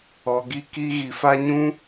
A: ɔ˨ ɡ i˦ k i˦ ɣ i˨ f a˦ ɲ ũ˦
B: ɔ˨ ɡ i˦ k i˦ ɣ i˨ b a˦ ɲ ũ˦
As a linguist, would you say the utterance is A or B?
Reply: A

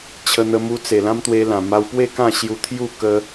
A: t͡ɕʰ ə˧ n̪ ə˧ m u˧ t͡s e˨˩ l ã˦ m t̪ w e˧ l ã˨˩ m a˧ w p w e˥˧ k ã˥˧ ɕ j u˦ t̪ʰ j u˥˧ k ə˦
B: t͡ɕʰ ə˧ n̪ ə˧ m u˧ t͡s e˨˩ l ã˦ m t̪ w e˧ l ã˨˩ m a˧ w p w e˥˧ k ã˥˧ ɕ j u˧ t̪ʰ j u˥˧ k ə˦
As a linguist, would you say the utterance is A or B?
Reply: B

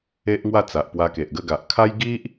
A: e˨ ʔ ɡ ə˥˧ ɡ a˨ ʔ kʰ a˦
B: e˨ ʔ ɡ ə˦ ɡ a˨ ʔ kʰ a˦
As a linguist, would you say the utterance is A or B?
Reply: A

